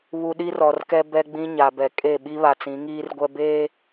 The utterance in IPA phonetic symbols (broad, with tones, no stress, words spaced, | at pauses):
βu˨ɗi˦rɔ˨rkɛ˦ bɛ˦ɡ͡bĩ˦ɲa˨bɛ˨ kʼe˦˨ ɓi˦βa˨t͡sĩ˨˦ ŋiː˦rɡʷɛ˦ beː˦